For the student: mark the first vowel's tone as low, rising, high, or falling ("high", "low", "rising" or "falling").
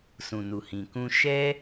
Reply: low